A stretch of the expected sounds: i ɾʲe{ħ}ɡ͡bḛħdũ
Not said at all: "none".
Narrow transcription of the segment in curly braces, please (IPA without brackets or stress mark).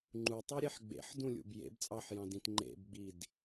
ħ